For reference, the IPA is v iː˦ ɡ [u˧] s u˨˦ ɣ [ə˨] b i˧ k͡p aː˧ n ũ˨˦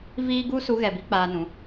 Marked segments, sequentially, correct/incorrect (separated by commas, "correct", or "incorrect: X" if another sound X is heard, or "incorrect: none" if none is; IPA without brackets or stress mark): incorrect: u˦, incorrect: ɛ˨